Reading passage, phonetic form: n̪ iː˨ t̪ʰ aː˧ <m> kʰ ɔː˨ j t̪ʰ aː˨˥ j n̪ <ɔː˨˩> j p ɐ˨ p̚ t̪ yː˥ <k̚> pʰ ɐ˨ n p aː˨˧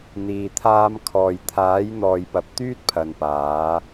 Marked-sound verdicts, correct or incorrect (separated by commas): correct, incorrect, incorrect